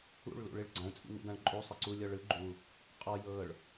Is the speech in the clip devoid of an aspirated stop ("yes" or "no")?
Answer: yes